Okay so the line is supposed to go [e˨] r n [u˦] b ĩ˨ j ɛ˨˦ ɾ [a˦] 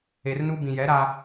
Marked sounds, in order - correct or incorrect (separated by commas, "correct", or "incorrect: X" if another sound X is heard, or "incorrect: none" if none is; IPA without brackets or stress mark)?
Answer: correct, correct, correct